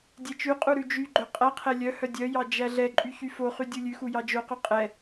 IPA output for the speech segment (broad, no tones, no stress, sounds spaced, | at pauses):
dʲ ɛ t͡ʃ ʉ qʼ u ɾ ʉ d͡ʒ y ɡ͡ǃ œ qʼ æ qʰ ɛ lʲ œ h œ dʲ œ j ɑ d͡ʒ æ ɮ ɛ ǃʼ y ç y f o χ y dʲ u lʲ ʉ x u j ɑ d͡ʒ o q ʉ qʼ ɛ